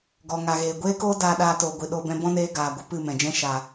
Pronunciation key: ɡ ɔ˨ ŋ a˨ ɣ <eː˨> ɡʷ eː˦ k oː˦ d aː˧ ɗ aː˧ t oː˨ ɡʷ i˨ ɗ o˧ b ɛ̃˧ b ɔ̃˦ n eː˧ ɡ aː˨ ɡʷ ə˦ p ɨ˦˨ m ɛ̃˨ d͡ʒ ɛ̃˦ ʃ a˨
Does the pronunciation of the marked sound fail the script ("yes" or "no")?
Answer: no